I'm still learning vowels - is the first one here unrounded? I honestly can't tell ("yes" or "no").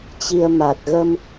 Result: yes